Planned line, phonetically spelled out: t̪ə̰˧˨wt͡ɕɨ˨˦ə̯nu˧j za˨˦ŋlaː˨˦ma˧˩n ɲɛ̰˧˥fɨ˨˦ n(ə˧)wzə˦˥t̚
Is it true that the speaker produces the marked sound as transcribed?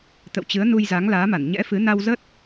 no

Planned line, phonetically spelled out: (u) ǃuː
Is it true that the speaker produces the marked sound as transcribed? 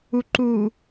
yes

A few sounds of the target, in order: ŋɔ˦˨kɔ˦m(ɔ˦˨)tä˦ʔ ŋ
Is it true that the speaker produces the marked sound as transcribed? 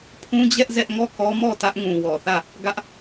yes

